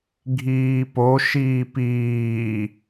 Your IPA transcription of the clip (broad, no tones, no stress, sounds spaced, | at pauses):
ɡʱ iː p o ʃ iː p iː